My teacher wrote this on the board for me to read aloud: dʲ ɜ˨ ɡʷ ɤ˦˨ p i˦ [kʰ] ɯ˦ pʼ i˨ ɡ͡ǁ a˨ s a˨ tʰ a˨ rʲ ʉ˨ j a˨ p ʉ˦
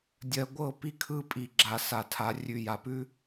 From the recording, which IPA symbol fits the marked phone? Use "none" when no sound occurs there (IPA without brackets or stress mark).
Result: kʰ